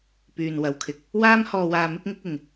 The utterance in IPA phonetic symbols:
pyː˨nwɐ˨wkʰɪ˧k̚ | waː˥m hɔː˧waː˧ mɪ˥k̚ŋɪ˥k̚ ɪ˨ŋ

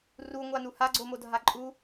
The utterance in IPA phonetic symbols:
ruŋʷanu haɡ͡ǀomodʱa ǃʼu

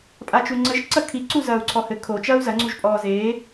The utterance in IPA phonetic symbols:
pʼat͡ʃuŋ͡ǀɘʒ ǀɐkʰi ǀuzɐːu̯ǀʰɔhɘ kʰo t͡ʃɐːu̯zɐ ŋ͡ǀuʒpʼɔːzeː

